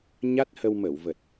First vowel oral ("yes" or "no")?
yes